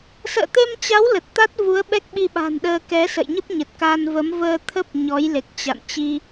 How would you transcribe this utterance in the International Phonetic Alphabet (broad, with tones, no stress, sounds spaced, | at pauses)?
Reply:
s ə̰ː˧˨ t̪ e˧ m t͡ɕ a˨˦ w l ə˨˩ t̚ t̪ a˦˥ t̚ v u˨˦ ə̯ ɓ ɛ˦˥ k̚ ɓ i˧ ɓ a̤˨˩ n ɗ əː˧ k ɛ˨˦ s ə̰˧˨ j ɲ ə˦˥ p̚ ɲ ə˨˩ t̚ k a˧ n v ə˨˦ m v əː˧ t̪ʰ ə˦˥ p̚ ɲ ɔ˨˦ j l e˨˩ k̚ t͡ɕ a̰˧˨ n t͡ɕ i˧